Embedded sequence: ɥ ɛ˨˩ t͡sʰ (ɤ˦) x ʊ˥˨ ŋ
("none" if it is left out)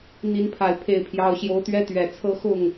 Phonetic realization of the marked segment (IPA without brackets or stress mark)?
ɤ˦